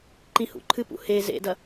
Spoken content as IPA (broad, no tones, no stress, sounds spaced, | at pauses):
ǃ ĩ h ṵ ǃʰ ɨ p ṵ h e z ḛ d ɐ